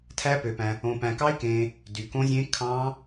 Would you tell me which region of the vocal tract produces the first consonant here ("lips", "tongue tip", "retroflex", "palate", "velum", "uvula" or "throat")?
tongue tip